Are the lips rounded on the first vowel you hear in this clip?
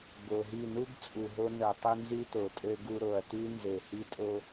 yes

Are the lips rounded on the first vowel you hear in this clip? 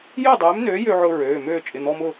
yes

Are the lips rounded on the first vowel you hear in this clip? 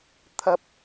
no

